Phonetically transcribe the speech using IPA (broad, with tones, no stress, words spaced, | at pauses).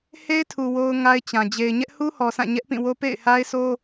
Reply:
he˦ɪ̯tʰu˨ wo˦ʊ̯ŋa˦ɪ̯t͡ɕã˨ d͡ʑe˨ɪ̯ɲɛ˦ʔhu˦hɔ˨ sã˦˨ɲɛ˦ʔpĩ˦˨wo˦ pḛ˦˨ɪ̯ha˦ɪ̯sʰo˦